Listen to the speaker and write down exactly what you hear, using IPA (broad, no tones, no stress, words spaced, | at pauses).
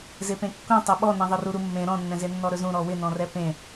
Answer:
zepẽkːũ tˤeɓɔnẽ ðˤɪruɾumːẽ ɾɔ̃nːɛ̃ze nːɔɾɵzũ ɾɔwɪnɔ̃rɛ pẽ